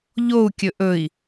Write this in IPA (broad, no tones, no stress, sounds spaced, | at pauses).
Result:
ʎ o u̯ kʲ ɵ ʔ ɵ i̯